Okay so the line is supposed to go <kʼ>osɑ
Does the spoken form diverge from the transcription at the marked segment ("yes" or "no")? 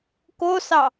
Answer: yes